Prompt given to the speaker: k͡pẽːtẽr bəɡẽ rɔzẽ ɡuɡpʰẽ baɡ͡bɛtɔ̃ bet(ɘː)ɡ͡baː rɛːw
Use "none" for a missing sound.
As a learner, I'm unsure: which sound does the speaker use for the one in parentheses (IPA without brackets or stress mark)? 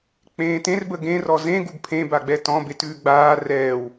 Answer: ʉː